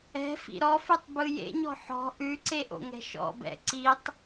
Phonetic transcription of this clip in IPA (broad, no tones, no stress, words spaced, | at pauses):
ɛ̤fḭ ɾɔfʉtˤbɯ jḛɲɔ̤ ħɔ̤ ʔʉǀeʔo̰ŋɛ̤ ʃɔ̰bɛ̰ ǀitˤ